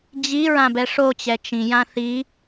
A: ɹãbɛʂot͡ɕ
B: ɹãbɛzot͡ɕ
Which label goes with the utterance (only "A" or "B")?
A